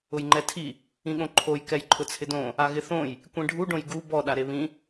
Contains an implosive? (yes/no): yes